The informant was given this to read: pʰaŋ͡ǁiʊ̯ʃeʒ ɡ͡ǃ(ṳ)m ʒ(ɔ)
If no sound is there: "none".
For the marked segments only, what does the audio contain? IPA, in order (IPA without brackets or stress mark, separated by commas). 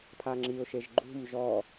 ṳ, ɔ